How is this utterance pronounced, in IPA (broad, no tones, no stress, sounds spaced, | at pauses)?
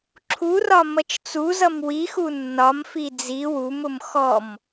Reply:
ǁʰ u r ɒ m ʌ t͡ʃ t͡s u z ʌ m w i x u nː ɒ m f i d͡z i w u m ʊ m x ɔ m